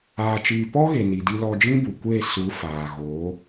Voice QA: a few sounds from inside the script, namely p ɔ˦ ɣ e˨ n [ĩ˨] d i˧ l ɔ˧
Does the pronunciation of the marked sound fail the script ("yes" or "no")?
yes